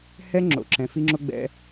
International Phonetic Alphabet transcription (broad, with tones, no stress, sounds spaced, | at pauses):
h ɛ˦ ŋ͡ǁ o̰˨ ǁ ɛ̃˨ f i˧ ŋ͡ǁ o˧ ɡ͡b ɛ̰˧